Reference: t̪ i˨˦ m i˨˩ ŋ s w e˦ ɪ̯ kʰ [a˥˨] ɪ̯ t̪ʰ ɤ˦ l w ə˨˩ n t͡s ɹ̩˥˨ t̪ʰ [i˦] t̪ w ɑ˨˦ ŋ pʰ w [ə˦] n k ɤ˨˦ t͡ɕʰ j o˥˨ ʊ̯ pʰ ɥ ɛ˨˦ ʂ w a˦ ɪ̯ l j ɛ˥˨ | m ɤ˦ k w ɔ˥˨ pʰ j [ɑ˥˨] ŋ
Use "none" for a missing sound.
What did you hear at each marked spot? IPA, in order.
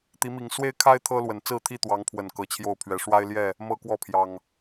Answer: a˦, i˥˨, ə˨˩, ɑ˨˩

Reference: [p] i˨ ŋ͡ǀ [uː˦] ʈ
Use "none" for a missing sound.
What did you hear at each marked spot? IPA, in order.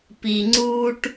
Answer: p, uː˦

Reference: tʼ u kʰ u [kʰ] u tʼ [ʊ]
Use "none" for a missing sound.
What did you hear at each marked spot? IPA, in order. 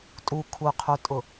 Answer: qʰ, ʊ

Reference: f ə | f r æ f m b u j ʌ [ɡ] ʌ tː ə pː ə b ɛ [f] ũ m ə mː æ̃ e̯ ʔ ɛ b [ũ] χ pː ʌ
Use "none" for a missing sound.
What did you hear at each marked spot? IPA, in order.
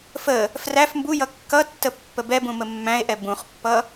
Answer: kː, b, ũ

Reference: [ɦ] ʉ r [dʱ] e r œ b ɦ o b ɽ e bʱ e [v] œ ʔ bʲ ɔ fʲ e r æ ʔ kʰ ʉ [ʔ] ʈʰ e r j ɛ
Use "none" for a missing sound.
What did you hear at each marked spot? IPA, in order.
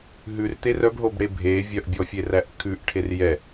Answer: ɦ, t̪, vʲ, ʔ

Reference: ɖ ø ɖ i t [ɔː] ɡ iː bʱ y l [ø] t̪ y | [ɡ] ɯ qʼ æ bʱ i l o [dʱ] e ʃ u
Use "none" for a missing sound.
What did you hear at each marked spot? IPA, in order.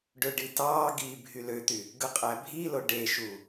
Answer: ɑː, ø, ɡ, ɖ

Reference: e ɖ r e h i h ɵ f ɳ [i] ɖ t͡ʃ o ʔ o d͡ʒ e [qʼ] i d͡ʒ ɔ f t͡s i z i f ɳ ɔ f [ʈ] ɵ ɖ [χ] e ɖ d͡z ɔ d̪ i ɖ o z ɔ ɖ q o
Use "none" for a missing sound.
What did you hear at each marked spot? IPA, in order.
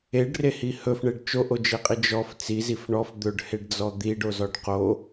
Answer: e, qʼ, d̪, h

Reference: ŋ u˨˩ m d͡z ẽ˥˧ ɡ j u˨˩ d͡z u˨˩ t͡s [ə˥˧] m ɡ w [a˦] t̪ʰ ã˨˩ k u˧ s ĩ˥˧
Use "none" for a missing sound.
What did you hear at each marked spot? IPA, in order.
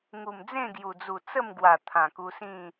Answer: ə˥˧, a˨˩

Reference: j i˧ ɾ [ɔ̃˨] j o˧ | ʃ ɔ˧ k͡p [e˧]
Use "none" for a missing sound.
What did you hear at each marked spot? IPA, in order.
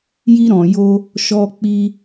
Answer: ɔ̃˨, i˧

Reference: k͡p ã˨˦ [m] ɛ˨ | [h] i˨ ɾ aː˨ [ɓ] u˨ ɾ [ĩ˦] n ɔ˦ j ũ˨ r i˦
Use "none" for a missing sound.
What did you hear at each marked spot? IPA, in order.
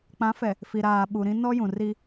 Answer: f, f, ɓ, ĩ˦

